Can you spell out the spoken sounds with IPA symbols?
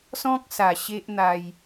s ɔ̃˦ k̚ s a˨˩ ɕ e˦ ʔ n̪ a˧ j

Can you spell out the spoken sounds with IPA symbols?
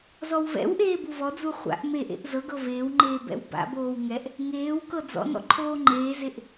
z ɔ w v ɛ̰ w ʔ eː b u v ɔ d͡z u χʷ a̰ ʔ m e ʔ ḛ ʔ z ɤ ɡ ɤ v eː w ŋ͡ǃ eː b ɛ̰ w b a̰ b oː w ŋ ɛ ʔ | ŋ eː w k ɤ d͡z ɔ̰ n ɔ̰ ǃʰ oː ŋ͡ǃ eː z e ʔ

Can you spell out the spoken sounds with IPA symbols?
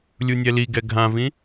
lʲ u nʲ ɛ l i ɡ ɛ ɡʱ ã v ĩ

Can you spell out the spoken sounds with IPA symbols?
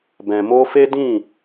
b ɛ̃˨ m o˧ f e˦ d ĩ˦˨

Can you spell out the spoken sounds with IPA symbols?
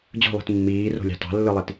d͡ʑ o̤ lˠ i̤ t mː iː r o̤ lʲ ɑ̤ t ɑ̤ lː ɯ lˠ i t

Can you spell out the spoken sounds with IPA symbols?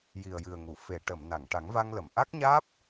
j i˨˩ ə̯ j ɨ˨˩ ə̯ ŋ u˨˩˨ f e˨˩˨ ʈ ə˨˩˨ m n a˨˩˨ ŋ ʈ a˨˩˦ ŋ v a˧ ŋ l ə˨˩˨ m ʔ a˦˥ k̚ ɲ aː˦˥ p̚

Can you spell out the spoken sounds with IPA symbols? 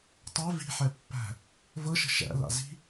tˤ ɛ v i̤ ħ ɛ pː æ̤ | v ɤ ʃ ə̤ ʃ æ̰ l a̰ z i̤

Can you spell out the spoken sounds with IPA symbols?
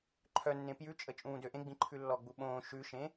ǃʰ œ nː ẽ p j ʉ t͡ʃʼ ə t͡ʃʼ ũː d ø ʔ ẽ ɡ͡b ĩ ǃʰ ʉ lː ɔ ɡ͡b u ɓ õː ʃ ʉ ʃ ẽ

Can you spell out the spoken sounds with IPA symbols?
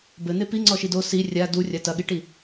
b ɘ n̪ e p i ŋ͡ǀ ɔ ʃ i d o s i rʲ a d u rʲ a t ɐ ɠ i ʈ i

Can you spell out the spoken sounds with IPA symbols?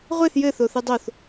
ʁʷ e θ j ɘ θ o θ ɨ dˤ o θ

